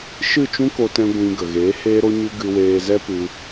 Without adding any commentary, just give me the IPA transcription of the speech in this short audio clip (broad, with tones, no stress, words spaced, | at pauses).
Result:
ʃɨ˦˨t͡ʃũ˦ko˧tɛ̃˧ ɡʷĩ˧ ɡə˨ɣeː˨˦ heː˦ɾo˦ɲɨ˦ ɡɨ˧weː˧ zɛ˦pɨ˧